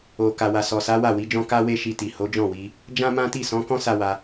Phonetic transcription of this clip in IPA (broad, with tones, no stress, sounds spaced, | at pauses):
o˨ k a˨ w a˨ s ɔ˨ s a˨˦ w a˦˨ w i˨˦ d͡ʒ ɔ̃˦ k a˦ w e˦ ʃ i˧ t i˨ h o˨˦ d͡ʒ ɔ̃˦˨ w i˧ | d͡ʒ ã˦ m ã˦ t i˦˨ s ɔ̃˨˦ k ɔ̃˦ s a˦ w a˧